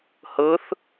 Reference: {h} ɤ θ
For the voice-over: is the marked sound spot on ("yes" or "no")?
yes